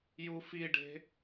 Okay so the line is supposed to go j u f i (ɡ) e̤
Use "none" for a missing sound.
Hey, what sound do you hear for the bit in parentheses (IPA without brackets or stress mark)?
ɖ